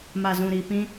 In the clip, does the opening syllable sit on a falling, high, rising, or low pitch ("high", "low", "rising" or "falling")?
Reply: low